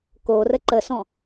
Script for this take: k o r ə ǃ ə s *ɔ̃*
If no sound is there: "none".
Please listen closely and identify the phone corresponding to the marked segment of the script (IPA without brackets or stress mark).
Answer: ɔ̃